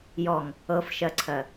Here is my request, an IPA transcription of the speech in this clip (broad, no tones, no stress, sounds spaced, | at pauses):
j ɔ ŋ | ɤ f ʃ ɜ ǀʰ ɜ